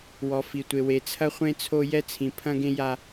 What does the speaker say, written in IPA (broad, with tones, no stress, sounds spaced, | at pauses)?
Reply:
w ɔ˨ f i˨ tʷ e˨ w e˨ t͡sʰ ɐ˦ χʷ ẽ˦ t͡sʰ o˦ j ɛ˦ t͡sʰ ĩ˨ pʰ ɐ̃˦ ɡ ẽ˦ j a˦